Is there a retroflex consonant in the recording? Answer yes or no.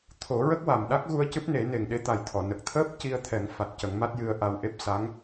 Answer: no